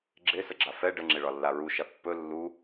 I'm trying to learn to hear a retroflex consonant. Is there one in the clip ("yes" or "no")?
yes